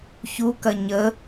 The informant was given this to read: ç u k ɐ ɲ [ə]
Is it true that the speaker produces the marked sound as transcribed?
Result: yes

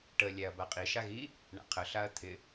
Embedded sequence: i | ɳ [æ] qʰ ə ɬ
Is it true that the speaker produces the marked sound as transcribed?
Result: no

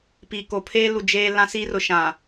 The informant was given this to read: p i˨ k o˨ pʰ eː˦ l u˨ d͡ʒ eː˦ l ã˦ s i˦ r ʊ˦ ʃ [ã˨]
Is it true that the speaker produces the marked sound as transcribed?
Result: yes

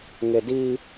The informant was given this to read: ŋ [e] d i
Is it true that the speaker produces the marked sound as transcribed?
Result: yes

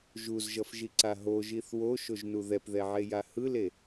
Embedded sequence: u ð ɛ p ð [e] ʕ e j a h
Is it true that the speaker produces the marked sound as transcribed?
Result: no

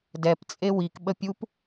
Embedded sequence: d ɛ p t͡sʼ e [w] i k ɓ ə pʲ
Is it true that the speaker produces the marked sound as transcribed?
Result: yes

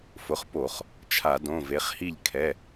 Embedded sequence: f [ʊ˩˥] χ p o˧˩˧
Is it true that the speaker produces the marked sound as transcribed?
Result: yes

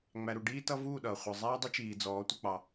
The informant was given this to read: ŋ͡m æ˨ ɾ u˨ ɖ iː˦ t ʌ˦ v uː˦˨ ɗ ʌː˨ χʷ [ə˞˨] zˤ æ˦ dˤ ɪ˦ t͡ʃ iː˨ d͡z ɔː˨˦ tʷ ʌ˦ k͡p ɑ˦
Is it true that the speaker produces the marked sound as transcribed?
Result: yes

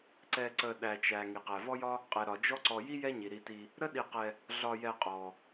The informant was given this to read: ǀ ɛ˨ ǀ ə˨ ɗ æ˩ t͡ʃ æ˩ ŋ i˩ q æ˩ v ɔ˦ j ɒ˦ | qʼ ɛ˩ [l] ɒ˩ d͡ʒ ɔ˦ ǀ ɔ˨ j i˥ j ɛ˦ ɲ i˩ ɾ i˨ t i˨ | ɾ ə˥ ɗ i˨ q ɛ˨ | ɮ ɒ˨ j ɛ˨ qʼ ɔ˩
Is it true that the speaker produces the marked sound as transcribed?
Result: no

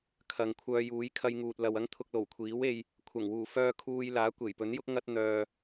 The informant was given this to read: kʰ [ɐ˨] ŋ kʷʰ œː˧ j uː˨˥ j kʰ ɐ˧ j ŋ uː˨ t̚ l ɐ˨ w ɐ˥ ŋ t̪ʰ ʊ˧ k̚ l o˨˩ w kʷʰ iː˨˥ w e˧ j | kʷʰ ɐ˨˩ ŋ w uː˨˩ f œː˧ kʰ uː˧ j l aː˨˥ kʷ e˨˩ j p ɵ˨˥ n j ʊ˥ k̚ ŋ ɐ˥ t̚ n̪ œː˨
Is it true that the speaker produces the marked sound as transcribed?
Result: yes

